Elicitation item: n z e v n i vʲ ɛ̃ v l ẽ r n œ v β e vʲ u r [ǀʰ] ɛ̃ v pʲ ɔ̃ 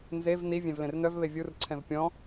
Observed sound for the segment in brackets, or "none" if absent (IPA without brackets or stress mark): ǀʰ